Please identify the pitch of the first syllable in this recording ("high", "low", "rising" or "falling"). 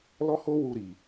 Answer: high